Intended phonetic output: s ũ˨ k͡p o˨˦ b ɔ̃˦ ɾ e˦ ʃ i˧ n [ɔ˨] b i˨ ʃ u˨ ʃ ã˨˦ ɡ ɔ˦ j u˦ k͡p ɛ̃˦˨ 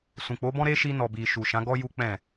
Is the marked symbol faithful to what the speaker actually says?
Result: yes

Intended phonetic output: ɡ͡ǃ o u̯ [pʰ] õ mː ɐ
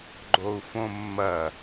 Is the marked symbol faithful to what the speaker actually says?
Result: no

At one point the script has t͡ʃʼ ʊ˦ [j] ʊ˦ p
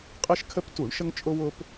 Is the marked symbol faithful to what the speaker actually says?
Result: no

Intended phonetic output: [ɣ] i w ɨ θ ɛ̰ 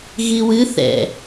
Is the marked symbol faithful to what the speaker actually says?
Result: yes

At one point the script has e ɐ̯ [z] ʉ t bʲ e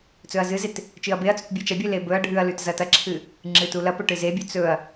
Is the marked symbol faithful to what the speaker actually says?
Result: no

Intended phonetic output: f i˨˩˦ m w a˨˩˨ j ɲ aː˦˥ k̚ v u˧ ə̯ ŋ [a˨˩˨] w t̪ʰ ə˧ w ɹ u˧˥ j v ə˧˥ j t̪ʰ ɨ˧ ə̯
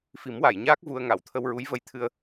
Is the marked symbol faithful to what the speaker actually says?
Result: yes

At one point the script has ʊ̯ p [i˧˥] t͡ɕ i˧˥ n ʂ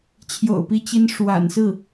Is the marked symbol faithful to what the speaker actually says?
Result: yes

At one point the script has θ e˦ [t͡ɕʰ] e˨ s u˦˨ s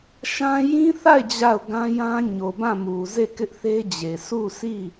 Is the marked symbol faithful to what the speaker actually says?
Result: no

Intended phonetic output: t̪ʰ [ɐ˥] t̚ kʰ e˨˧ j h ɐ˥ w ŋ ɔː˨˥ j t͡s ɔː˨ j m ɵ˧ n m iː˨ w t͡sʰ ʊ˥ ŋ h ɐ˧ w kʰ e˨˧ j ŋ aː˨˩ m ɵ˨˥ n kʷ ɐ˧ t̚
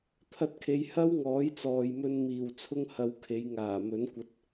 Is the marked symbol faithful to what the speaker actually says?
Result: no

